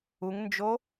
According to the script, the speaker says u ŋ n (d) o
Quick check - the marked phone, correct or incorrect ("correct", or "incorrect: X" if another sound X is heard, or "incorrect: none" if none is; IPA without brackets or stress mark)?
incorrect: d͡ʒ